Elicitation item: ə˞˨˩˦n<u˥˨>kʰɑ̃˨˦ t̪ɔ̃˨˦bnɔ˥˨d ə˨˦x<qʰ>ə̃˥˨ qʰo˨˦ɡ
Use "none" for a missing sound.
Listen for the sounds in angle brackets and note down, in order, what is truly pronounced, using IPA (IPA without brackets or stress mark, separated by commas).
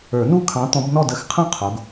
u˥˨, qʰ